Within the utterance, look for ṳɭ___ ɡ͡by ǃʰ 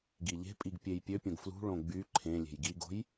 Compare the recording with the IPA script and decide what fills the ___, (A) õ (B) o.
A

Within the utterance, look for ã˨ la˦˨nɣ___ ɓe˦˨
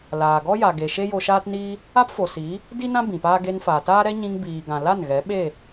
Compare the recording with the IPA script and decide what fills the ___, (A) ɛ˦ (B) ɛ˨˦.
B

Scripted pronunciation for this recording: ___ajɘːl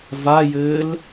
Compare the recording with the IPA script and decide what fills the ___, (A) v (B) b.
A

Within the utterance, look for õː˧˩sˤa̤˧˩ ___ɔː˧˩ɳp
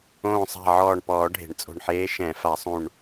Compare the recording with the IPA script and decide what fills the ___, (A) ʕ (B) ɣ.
A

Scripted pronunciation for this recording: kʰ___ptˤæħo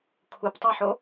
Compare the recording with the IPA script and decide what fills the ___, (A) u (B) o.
A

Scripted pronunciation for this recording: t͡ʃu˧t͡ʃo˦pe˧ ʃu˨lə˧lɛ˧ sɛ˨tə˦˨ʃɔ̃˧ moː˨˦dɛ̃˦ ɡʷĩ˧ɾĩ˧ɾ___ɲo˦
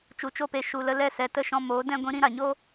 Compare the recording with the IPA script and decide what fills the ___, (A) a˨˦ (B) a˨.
B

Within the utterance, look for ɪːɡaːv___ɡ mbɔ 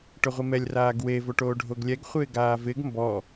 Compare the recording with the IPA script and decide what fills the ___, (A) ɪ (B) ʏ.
A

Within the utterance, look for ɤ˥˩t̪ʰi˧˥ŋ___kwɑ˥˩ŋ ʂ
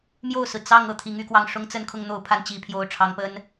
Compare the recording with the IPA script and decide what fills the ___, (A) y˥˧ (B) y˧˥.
A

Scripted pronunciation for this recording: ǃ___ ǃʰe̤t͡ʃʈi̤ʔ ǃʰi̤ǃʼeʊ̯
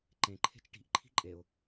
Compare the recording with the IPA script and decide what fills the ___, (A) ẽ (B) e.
A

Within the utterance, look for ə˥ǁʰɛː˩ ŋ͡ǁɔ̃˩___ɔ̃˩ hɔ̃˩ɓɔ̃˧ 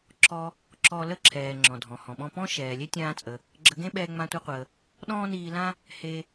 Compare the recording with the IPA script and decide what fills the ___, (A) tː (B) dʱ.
B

